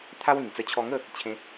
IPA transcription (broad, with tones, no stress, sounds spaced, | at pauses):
t̪ʰ a˦ w ĩ˨˩ ŋ t͡s ə˧ t͡ɕʰ ɔ˧ ŋ ə˥˧ | t͡ɕʰ ẽ˧